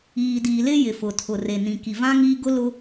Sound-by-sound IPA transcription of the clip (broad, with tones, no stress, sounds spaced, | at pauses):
iː˨ d iː˨ l ɪ˦ j ɪ˨ f ʊ˨ tʰ ʊ˨ r e˨ n ĩ˨ k i˨ v ã˦ ŋ iː˦ ɡ ʊ˦ l ʊ˦